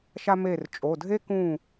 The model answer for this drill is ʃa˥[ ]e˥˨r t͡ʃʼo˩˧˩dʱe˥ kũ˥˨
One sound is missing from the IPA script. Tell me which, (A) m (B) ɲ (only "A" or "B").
A